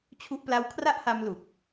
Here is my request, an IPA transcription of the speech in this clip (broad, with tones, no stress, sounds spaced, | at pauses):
t͡ɕʰ u˦˥ ʔ p l a˦˥ w kʰ r a˥˩ ʔ h a˧ m l u˨˩ k̚